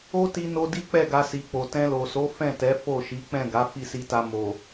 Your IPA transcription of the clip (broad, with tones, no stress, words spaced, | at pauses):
o˦ti˧no˧ di˦k͡pɛ˦˨ɡa˧ si˨k͡po˨ tɛ̃˧lo˨so˨˦ fɛ̃˦˨tɛ˨˦ fo˦˨ʃi˨˦ k͡pɛ̃˦˨ɡa˨˦ fi˦˨si˧ta˧ mo˨